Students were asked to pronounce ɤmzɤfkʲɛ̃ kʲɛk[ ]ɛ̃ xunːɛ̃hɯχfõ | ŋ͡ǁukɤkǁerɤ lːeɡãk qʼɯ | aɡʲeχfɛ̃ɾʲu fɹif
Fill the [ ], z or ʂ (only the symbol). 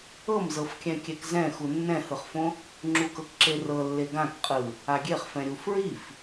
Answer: z